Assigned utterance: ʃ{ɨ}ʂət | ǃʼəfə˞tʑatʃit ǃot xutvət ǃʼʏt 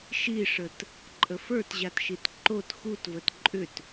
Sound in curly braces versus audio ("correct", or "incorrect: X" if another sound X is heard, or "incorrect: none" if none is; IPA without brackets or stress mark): incorrect: i